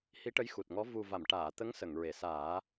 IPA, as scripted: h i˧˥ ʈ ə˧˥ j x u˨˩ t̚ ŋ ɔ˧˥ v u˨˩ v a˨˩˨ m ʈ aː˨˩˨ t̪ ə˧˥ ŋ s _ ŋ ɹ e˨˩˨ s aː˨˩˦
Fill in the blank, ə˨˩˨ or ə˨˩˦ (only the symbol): ə˨˩˨